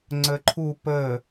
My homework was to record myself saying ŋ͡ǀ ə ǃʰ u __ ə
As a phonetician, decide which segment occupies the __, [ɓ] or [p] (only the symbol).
p